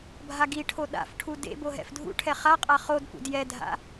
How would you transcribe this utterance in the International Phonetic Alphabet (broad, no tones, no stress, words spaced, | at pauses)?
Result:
bʱaɡiʈʰo ɗa̰fʈʰu dḛbo ɦɛ̰fdʱṵʈʰɛ χaqʼa χod pṵdjɛdʱa̰